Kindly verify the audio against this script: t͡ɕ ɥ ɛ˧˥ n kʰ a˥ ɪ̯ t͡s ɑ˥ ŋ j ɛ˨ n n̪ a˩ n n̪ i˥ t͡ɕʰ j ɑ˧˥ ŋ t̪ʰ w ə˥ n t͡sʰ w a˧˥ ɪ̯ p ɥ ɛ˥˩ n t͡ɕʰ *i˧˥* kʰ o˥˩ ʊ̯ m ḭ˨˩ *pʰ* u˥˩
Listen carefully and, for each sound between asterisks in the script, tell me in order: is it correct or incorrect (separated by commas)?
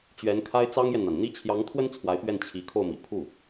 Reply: correct, correct